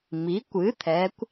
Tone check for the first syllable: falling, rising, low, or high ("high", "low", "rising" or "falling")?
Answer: rising